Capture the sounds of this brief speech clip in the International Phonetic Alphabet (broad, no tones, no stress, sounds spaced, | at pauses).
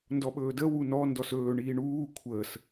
n d ɔ ɓ ɵː d ə w u n ɔ n d ɔ s ɵː ɳ iː ɳ uː kʷʰ əː s